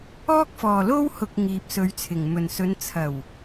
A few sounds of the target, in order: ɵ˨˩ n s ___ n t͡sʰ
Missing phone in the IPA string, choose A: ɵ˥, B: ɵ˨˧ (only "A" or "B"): B